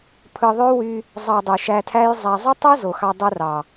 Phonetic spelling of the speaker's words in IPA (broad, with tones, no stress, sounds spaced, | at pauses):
pʰ ɯ˧ ðˤ ø˦ w y˧ | zˤ ɑ˧ dˤ y˨ ʃ æ˧ tʰ æ˦ j zˤ æ˧ zˤ y˦ tˤ ɯ˦ z o˨ x ɑ˧ dˤ ɯ˧ r ɑ˨